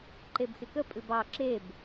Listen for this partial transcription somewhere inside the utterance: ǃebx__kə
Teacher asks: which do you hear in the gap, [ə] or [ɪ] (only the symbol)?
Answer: ɪ